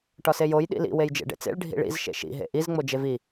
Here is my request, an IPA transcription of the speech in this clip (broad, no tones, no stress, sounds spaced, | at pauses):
ʈ ɒ s e j o j ɗ ḭ l ḭ w e j d͡ʒ ḛ ɖ ḛ t͡s ḛ ɭ ɖʱ ḭ ɭ ḭ z ʃ ḛ ʃ ḭ ɦ ḛ ʔ i z ŋ͡m o d͡ʒ e v i